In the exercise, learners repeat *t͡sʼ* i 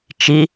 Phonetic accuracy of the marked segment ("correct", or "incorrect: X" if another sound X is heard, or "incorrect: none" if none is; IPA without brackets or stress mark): incorrect: t͡ʃ